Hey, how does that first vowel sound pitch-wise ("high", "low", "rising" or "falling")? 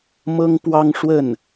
high